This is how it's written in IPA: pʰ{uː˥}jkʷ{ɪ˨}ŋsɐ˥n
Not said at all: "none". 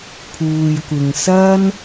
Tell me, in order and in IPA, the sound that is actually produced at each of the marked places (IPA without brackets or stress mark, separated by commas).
uː˨, ɪ˨